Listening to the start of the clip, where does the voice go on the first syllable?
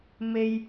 low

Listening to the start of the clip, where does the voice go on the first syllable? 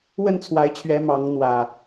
falling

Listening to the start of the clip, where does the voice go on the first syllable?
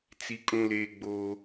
high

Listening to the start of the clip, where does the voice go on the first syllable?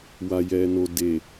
low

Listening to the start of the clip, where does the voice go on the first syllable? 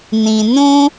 low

